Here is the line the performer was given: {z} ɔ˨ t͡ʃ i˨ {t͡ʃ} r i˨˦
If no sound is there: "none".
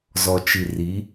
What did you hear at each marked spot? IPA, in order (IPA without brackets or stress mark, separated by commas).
z, none